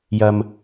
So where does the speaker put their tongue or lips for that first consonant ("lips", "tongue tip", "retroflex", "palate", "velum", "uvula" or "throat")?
palate